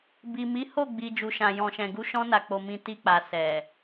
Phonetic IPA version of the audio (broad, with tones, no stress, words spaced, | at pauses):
bi˨mi˨˦ ho˦˨ɡ͡bi˨ d͡ʒu˨ʃã˨jɔ̃˨ʃɛ̃˨ ɡu˧ʃɔ̃˧na˨ k͡po˧mĩ˧ ti˧k͡pa˨ sɛ˨